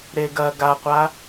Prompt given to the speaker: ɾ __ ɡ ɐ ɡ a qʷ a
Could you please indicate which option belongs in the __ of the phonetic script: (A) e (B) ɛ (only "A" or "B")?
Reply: A